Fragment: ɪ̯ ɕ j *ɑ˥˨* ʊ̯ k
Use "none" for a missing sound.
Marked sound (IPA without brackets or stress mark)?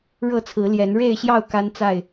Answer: ɑ˥˨